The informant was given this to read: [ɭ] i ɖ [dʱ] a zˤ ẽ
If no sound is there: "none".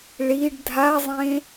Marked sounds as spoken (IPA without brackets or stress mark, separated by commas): ɭ, dʱ